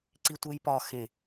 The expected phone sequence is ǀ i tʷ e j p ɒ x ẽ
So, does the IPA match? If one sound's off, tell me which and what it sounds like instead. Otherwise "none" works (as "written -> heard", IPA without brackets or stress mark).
none